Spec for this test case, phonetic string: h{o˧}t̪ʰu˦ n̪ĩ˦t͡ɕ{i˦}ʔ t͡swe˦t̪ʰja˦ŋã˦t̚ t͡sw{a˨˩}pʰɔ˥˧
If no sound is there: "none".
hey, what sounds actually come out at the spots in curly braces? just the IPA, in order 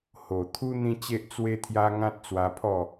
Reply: o˨˩, e˦, a˧

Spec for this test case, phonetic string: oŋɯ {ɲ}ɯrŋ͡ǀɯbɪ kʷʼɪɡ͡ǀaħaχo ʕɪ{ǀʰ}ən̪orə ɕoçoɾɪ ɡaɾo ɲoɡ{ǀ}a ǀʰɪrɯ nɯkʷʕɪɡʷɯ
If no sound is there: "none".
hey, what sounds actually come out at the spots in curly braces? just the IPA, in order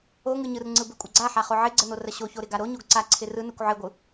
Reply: ɲ, ɡ͡ǀ, ǀ

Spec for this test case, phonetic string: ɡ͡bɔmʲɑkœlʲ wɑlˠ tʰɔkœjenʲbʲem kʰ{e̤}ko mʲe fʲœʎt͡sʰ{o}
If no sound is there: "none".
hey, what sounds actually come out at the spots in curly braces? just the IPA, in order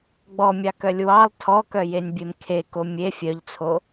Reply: e, o

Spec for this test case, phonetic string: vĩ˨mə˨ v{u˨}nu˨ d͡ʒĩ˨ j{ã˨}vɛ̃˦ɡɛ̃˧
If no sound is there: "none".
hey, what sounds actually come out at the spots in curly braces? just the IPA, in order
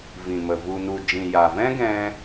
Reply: u˨, a˨

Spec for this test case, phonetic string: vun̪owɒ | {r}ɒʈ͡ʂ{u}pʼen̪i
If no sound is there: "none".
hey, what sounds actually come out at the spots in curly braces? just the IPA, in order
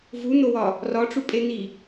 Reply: r, u

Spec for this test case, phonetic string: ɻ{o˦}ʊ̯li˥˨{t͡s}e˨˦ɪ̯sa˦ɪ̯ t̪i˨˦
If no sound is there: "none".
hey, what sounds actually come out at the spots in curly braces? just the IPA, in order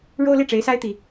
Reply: o˦, ʈ͡ʂ

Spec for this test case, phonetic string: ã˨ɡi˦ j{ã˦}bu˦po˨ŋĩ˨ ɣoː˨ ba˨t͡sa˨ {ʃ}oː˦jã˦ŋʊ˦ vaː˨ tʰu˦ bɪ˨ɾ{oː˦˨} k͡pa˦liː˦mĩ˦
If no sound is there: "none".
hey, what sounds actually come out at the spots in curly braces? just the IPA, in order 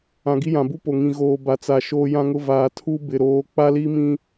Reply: ã˨, ʃ, oː˨˦

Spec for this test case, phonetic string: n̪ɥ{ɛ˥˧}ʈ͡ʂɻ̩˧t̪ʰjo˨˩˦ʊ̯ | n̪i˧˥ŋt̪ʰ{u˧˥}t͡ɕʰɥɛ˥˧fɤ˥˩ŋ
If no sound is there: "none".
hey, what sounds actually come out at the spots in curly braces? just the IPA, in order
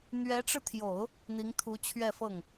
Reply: ɛ˧˥, u˧˥

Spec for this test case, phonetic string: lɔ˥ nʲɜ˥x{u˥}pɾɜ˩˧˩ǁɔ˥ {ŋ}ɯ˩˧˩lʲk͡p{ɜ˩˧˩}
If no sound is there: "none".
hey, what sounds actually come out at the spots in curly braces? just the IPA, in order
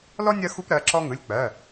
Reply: u˥, ŋ, ɜ˩˧˩

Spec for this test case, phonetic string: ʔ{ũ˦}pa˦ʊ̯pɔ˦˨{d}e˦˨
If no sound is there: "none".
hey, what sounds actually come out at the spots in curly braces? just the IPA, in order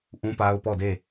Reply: ũ˦, d

